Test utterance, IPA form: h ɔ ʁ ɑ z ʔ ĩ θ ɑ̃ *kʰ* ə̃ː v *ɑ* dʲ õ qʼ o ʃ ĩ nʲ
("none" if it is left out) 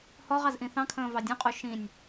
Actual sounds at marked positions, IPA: kʰ, ɑ

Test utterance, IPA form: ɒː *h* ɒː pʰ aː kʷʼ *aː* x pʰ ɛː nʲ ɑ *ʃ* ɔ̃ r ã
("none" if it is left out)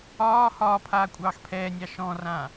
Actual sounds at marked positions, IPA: h, ɑː, ʃ

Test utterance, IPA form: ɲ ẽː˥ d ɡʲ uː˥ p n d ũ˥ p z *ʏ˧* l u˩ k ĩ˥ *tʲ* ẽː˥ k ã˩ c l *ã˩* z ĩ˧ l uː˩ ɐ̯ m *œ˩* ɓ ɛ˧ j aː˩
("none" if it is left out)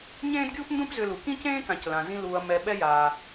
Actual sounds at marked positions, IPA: ʏ˧, c, ã˩, ɛ˩

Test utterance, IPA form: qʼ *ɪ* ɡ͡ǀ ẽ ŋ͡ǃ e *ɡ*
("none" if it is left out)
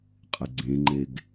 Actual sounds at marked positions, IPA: ɪ, ɡ

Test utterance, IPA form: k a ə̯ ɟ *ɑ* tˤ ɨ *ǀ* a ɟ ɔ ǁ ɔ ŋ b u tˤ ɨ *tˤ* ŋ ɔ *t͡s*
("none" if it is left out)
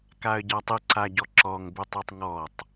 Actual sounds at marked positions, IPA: a, ǀ, tˤ, tˤ

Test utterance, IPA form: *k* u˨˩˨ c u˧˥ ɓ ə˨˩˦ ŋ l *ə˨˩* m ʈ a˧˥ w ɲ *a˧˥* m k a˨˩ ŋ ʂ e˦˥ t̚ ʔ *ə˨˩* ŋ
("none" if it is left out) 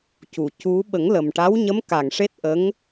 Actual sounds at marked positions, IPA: c, ə˨˩, ə˧˥, ə˧˥

